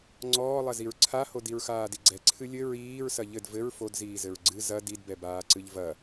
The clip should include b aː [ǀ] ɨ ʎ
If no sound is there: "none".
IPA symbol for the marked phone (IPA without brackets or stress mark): ǀ